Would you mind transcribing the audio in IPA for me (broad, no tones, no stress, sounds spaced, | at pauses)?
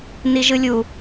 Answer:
n i ʒ ɯ lʲ u